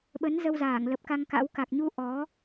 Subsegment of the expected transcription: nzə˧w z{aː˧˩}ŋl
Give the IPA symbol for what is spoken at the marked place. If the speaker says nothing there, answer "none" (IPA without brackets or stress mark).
aː˧˩